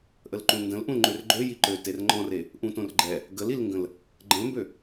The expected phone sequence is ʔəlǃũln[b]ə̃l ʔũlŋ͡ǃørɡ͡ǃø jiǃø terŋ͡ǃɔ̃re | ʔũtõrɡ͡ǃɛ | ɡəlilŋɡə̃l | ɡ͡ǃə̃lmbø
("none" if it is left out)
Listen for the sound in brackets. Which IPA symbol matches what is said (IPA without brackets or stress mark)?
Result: d